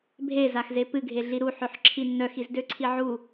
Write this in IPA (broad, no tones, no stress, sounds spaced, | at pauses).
bʱ e z a x z e p ɨ ɡʱ e ɮ i ɾ u ħ ø ħ ǁʰ i nː œ x i z d ø ǀʰ i ʕ u